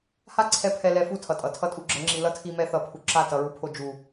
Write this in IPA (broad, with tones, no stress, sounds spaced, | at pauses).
h a˦ ǀʰ ɛ˧ pʰ ɛ˧ l ɛ˧ f u˦˨ tʰ ʌ˨ tʼ ʌ˨ tʰ ʌ˦ tʼ u˧ ɡ͡ǁ ʌ˨˦ ŋ͡ǁ i˨ l ʌ˦ tʰ i˧ m ɛ˧ θ ʌ˨ pʰ u˨ ǁ a˦˨ t ʌ˧ ɹ u˧ pʰ o˧ d͡ʒ u˨